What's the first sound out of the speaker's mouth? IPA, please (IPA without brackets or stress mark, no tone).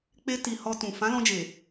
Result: k͡p